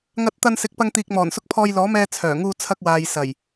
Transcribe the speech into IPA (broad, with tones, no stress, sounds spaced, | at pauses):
ŋ ɐ˧ t̚ t̪ ɐ˧ n s ɪ˨˥ k̚ p ɐ˧ ŋ t̪ iː˨ k̚ m ɔː˨˩ n s ʊ˧ k̚ pʰ ɔː˧ j l ɔː˨˥ m ɛː˧ t͡sʰ œː˨˩ ŋ uː˧ t͡sʰ ɐ˧ k̚ w aː˨ j s ɐ˨˩ j